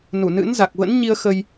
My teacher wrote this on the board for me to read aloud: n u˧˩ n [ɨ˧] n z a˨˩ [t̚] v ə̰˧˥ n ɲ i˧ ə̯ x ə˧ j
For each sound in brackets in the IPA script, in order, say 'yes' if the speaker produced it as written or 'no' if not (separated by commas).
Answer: no, no